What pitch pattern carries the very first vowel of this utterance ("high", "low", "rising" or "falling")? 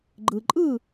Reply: low